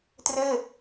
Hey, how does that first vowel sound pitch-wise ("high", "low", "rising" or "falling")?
falling